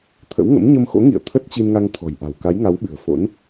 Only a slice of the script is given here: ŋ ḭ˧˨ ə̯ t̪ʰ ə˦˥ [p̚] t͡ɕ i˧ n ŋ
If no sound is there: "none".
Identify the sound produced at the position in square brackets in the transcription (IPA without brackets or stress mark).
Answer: t̚